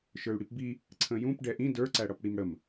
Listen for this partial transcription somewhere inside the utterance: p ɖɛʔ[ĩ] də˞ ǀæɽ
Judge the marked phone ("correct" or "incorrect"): correct